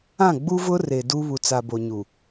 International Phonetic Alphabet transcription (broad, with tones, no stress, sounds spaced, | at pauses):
ã˦˨ ɡ͡b u˦ v ʊ˦ r e˨ d u˦ β u˨ t͡s a˨ b o˨ ɲ u˨